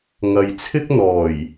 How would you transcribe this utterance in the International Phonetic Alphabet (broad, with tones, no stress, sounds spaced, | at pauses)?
ŋ ɐ˨ j t͡sʰ ɪ˥ k̚ n̪ ɔː˨˩ j